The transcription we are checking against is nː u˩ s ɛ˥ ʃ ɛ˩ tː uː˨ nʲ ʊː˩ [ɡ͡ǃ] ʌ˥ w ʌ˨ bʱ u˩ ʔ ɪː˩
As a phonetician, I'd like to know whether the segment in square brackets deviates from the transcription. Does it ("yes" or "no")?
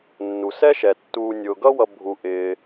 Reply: yes